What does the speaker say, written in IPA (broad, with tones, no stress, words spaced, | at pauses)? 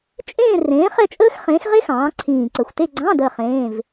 t͡ʃʼẽː˥˧rẽː˨˥ χɛ˥˧t͡ʃʼəː˥x χẽː˨˥xʁe˥xɑ̃ː˩˧ ǀʰĩː˨˩ǀə˨˩xʷte˥˧ ɡ͡ǀɑ̃˧˥˧ dəː˥˧χẽː˧˥˧v